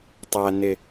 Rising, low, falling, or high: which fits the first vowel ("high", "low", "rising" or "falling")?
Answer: low